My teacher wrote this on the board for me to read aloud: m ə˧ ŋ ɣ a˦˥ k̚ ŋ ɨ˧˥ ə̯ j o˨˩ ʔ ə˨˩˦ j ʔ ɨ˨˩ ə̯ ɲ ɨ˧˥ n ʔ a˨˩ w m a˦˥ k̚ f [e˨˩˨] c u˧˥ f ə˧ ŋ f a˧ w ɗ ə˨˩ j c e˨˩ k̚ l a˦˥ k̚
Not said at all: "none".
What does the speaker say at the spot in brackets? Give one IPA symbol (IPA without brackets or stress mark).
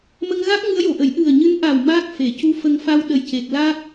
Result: e˨˩˨